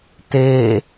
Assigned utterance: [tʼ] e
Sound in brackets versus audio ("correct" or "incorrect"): incorrect